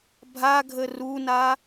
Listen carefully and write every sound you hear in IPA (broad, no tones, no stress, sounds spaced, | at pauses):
bʱ a ɡʱ ə r u n a